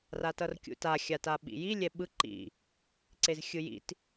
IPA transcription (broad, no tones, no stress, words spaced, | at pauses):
ratʌrkʲṵta xʲataɓḭji lʲɛɓɯ ǃḭ | ǀezxʲɯjḭt